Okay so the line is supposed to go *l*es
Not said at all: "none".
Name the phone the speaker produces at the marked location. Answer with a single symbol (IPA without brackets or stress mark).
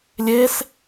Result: lʲ